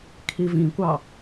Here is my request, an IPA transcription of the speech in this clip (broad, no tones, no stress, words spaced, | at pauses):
kʰivĩkʷɑ